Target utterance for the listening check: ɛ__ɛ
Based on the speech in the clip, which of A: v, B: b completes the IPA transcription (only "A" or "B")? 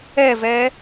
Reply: A